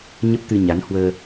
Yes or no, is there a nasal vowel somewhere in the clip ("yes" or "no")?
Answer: no